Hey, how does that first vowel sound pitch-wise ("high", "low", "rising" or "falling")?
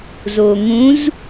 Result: low